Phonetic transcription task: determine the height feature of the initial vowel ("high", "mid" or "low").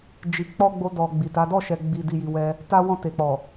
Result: high